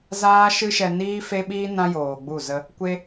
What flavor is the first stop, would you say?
implosive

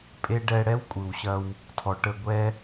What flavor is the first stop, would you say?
ejective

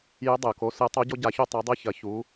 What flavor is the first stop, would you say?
plain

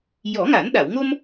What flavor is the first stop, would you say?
implosive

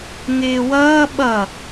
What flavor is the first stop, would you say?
implosive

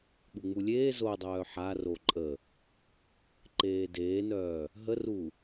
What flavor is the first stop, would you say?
implosive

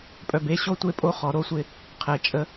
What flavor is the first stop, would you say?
ejective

